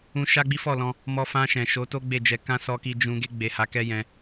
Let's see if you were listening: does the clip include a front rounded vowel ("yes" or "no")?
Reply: no